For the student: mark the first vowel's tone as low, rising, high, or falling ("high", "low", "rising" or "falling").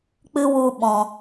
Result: high